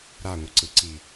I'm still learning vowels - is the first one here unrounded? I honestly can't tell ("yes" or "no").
yes